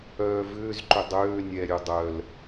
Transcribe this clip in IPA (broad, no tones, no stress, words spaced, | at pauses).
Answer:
œːvʏːzǃʏ dˤøː nʲɛɾʲø dˤœl